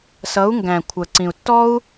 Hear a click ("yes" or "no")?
yes